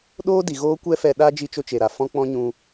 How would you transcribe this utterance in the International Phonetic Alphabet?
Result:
ɗ oː˦ d i˨ ɣ oː˦ kʷ ɛ˦ f ɛ˧ ɗ a˦ d͡ʒ i˧ t͡ʃ o˧ t͡ʃ e˨ ɾ a˨ f ɔ̃˦ k͡p ɔ̃˦ ɲ ũ˧

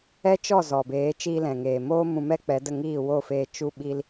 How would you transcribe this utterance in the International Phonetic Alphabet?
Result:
ɛ˦ t͡ʃ ɔ˦˨ z ɔ˨ b eː˨˦ t͡ʃ iː˧ l ɛ̃˨ ŋ eː˨ m oː˦ m ũ˧ m ɛ˦ k͡p ɛ˨˦ d ə˦˨ ŋ iː˦˨ w o˦˨ f eː˧ t͡ʃ u˦ ɓ i˦ l

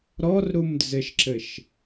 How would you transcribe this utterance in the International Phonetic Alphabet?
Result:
ɾ ɔ r ɾ u m d͡z ɘ ʃ ǁ ɘ ʃ

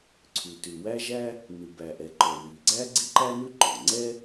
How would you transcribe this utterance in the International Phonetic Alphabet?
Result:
ǀʰ ʉ˩ t ʉ˩ w æ˥ ʒ æ˥ | n ʉ˩ b æ˩ ʔ ɛ˩ ǃ ɔ˩ w i˩ ɡ͡ǀ æ˥ ɡ͡ǀ i˥ ǃ æ˥ n ʉ˥ ǃ ɔ˩ ŋ͡ǀ ɛ˥

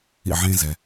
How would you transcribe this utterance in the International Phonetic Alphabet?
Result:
ḭ˥˩ ʕ ẽ˥ z ɛ˩

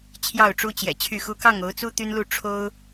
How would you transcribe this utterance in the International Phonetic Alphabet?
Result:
t͡ɕʰ j ɑ˥˨ ʊ̯ ʈ͡ʂ u˦ t͡ɕ j ɛ̰˨˩ t͡ɕʰ y˥˨ x u˦ k ɑ˥˨ ŋ o˨˦ ʊ̯ t͡s u˦ t̪ y˦ n l u˥˨ ʈ͡ʂʰ o˦ ʊ̯

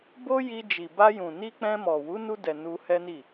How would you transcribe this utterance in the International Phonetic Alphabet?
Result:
b o˦ j i˧ d͡ʒ i˨ b a˧ j ũ˨ n i˧ k͡p ɛ̃˧ m ɔ˨ w u˨˦ n u˧ d ɛ˨ n u˧ h ɛ˦ n i˦˨

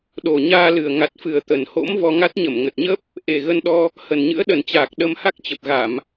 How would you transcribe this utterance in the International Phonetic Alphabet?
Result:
ɗ o˨˩ ɲ aː˧ l ɨ˨˩ ə̯ ŋ a˨˩ t̚ f ɨ˨˩ ə̯ t̪ ə˨˩ n h o̰˧˥ m v ɔ˧ ŋ a˦˥ t̚ ɲ ə˧˩ m ŋ ə˨˩ t̚ ɲ ə˦˥ p̚ | ʔ e˨˩ ɣ ə˧ n ɗ ɔ˧ | h ə˨˩ n ɲ ɨ̰˧˥ ə̯ ɗ ə˨˩ n t͡ɕ aː˨˩ k̚ ɗ ə˧ m h a˦˥ k̚ t͡ɕ ə˨˩ p̚ ɣ a˧˩˨ m

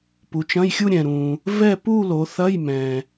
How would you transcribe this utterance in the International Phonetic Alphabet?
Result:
p u˨˦ t͡ʃ ɐ̃˧˥˧ j xʲ u˥˧ ɾʲ ɛ̃˨ ɾ ũ˨ | v ɛ˥˧ p u˥˧ l o˨˦ θ ɐ˧˥˧ j m ɛ̃˨

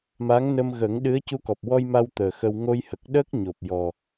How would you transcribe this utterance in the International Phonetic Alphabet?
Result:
m a˧˥ ŋ n ə˧ m ɣ ə˨˩˦ ŋ ɗ ɨ˧˥ ə̯ c u˧ k ɔ˨˩ p̚ w ɔ˧ j m a˧ w t̪ əː˨˩ x ə˧ w ŋ o˧ j h ə˨˩ k̚ ɗ əː˦˥ k̚ ɲ o˨˩ p̚ j ɔ˨˩

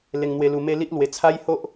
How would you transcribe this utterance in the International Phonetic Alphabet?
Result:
l e˧ ŋ n̪ w e˧ l u˧ m e˦ l i˦ ʔ l w e˧ t͡sʰ a˦ j h o˦ ʔ

